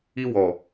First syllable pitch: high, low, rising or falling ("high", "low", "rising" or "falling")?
high